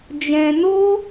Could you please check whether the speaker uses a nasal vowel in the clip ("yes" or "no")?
yes